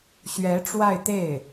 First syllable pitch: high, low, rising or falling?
rising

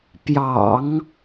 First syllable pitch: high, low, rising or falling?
low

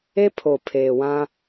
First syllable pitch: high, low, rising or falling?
high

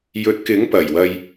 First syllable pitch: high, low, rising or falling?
rising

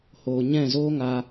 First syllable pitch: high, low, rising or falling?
low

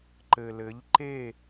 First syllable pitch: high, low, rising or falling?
low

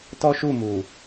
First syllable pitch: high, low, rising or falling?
high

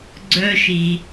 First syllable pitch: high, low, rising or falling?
high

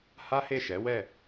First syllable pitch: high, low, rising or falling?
high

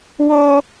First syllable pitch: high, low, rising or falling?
high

